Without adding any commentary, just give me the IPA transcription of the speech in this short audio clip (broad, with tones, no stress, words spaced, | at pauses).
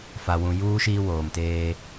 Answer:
fa˨wũ˨juː˦ ʃiː˦woː˨mteː˦